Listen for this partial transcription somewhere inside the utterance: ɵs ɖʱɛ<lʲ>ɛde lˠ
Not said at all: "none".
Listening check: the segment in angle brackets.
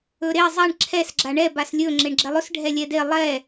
lʲ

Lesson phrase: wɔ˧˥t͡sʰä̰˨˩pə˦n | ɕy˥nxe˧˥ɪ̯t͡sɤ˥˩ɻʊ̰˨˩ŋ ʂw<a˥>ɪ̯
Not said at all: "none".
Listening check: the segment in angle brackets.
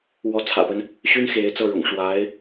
a˧˥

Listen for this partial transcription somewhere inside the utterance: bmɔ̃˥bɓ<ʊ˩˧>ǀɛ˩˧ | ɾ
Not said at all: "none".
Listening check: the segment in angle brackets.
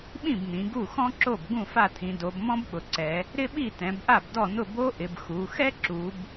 ʊ˩˧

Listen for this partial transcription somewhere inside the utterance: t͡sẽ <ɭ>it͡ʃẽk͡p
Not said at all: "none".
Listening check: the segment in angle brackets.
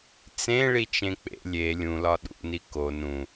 ɭ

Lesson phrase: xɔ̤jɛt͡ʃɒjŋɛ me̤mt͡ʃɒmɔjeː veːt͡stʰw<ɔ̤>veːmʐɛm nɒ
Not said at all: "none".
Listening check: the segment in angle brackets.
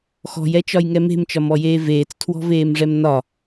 ɔ̤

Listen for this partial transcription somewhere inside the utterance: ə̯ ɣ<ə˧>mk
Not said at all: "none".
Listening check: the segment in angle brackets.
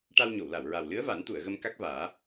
ə˧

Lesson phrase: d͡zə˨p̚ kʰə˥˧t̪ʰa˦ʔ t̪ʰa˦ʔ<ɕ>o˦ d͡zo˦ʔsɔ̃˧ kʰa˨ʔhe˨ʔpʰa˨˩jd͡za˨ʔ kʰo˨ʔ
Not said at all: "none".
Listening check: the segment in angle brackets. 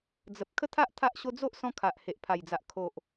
ɕ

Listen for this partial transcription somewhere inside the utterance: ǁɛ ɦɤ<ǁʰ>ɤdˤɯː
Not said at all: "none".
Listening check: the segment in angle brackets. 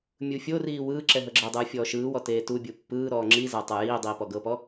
ɡ͡ǁ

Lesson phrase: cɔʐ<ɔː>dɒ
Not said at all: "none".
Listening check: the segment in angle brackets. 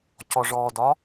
ɔː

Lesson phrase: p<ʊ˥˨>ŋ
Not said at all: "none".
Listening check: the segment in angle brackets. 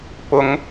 ʊ˨˦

